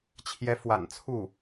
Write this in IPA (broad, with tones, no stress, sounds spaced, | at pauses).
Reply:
t͡ɕʰ j ɛ˧˥ f w a̰˨˩ n t͡sʰ u˥˩